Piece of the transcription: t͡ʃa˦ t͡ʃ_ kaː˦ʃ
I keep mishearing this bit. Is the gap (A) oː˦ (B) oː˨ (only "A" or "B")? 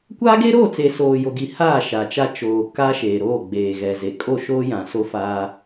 B